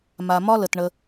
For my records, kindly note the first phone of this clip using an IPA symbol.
m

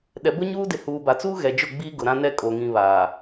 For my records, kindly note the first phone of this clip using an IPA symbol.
ɗ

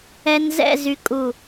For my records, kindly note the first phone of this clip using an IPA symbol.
ɛ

